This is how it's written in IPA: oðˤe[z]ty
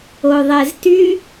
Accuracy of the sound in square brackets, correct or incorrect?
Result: correct